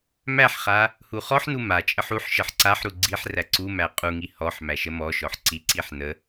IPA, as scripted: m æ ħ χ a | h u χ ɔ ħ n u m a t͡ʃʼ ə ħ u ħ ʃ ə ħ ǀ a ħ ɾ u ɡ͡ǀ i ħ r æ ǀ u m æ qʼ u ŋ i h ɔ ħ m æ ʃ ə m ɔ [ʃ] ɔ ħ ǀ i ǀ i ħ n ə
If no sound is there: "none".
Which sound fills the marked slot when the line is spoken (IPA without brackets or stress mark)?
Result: ʃ